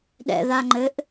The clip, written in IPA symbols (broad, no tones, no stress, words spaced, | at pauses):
ɗɛ̰ða ŋ͡ǃɘʔ